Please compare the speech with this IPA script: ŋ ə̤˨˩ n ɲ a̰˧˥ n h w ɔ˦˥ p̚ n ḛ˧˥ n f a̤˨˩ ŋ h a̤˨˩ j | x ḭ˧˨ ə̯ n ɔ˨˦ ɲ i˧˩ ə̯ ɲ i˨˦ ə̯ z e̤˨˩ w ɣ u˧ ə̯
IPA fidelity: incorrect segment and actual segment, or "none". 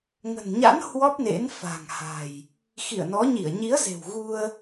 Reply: none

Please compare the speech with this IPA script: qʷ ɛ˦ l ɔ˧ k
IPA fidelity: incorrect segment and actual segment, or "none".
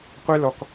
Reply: none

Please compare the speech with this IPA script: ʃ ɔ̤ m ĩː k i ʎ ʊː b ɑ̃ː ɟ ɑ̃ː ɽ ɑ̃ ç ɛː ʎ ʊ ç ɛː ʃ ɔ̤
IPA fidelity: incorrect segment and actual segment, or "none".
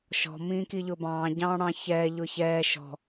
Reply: none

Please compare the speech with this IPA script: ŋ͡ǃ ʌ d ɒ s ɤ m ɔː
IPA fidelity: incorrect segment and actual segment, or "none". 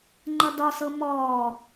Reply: none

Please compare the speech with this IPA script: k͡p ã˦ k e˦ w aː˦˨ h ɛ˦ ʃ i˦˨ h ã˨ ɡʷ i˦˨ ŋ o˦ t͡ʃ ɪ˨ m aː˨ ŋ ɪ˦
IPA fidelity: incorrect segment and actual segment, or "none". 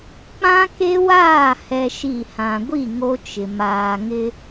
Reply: none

